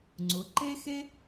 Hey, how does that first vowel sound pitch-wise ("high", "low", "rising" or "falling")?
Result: rising